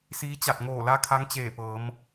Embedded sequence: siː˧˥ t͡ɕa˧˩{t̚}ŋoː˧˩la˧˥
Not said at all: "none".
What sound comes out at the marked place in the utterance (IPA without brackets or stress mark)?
t̚